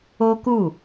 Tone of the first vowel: high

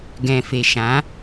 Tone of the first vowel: low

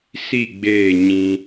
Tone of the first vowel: falling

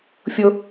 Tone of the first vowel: high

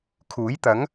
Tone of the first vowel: rising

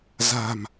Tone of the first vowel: low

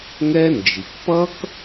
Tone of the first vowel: high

